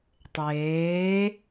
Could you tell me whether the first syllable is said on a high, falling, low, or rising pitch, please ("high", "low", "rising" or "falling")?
rising